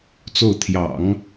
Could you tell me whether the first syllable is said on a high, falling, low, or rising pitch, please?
falling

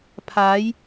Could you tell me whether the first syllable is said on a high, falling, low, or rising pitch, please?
rising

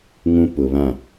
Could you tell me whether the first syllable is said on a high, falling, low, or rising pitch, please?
high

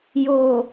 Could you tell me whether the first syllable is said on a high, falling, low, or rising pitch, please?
low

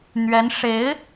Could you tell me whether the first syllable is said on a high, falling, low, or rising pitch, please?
rising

